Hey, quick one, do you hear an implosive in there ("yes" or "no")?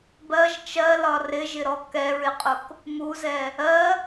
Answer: no